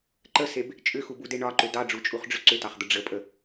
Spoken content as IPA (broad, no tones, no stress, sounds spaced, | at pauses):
ǃ ə s e b | t͡ʃʼ ʏ x u b u d e ɳ ɒ ǃ ʏ d ɑ ɖ͡ʐ u t͡ʃʼ u χ ɖ͡ʐ ʏ ǀ ʏ t ɑ χ d̪ ə ɖ͡ʐ ə pʼ ə